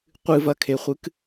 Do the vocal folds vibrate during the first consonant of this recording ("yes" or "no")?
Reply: no